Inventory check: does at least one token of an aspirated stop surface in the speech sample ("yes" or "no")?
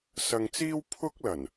yes